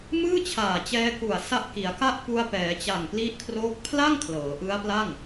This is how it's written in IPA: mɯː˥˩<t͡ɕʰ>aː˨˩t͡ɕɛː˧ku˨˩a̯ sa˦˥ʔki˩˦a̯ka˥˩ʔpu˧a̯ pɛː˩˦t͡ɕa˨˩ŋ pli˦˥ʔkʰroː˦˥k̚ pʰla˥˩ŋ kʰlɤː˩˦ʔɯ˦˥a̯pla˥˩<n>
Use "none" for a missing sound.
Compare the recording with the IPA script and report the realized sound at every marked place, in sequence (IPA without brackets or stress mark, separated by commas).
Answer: t͡ɕʰ, ŋ